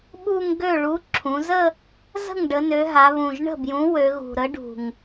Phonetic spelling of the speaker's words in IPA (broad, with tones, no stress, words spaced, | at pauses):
ɓu˥˧ŋ ɡø˥˩ɭu˨˥ ǁʰũ˩˧zə˥˧ | zə̤˥˩ŋɖə˩˧nø˩˧ ɦa˩˧βũ˨˩ʒ ɳə̤˥˩bjũ˨˥ wø˩˧ɣṳ˨˩ɾə˨˥ɖṳ˨˩ŋ